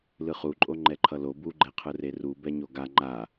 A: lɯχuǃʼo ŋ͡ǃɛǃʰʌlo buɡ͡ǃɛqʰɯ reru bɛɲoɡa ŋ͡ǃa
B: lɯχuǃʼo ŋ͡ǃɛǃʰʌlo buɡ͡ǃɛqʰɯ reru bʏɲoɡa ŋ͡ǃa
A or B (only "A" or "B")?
A